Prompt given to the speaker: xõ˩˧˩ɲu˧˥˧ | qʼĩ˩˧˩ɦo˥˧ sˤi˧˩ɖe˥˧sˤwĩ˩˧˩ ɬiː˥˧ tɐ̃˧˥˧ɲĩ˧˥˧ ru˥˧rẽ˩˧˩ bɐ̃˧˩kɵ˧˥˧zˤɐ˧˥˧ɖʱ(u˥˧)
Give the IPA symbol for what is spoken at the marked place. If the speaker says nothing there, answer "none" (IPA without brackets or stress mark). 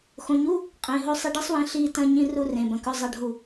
u˧˩